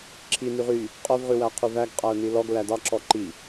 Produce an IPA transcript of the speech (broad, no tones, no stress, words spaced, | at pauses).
ǁʰi nyʁy | qʼœv ʁʉwæqʰʉvæɡ qʼæʊ̯nilɔɡ lædɑ ǁɔǃi